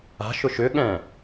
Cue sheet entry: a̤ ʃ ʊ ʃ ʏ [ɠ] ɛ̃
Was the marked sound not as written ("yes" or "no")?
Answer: no